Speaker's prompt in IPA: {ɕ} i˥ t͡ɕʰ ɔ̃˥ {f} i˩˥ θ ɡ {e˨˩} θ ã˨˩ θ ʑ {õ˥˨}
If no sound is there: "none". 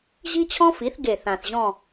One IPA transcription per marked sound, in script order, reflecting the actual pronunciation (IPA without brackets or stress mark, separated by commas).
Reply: ʑ, f, e˨˩, ɔ̃˥˨